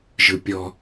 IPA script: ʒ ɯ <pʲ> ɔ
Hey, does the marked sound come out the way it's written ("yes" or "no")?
yes